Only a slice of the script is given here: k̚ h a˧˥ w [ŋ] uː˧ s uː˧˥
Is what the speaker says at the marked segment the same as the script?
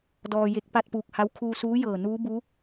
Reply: no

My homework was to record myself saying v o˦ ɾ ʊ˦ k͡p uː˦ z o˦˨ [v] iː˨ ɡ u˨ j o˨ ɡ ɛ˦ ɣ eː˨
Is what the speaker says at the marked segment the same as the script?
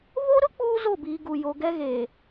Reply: no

